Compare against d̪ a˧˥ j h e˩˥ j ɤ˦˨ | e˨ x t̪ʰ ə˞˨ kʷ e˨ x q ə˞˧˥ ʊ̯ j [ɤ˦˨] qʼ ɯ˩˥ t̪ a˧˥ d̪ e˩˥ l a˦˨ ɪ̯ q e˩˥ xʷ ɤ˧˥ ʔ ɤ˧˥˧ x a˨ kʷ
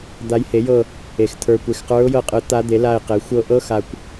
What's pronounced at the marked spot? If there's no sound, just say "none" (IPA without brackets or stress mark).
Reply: ɤ˦˨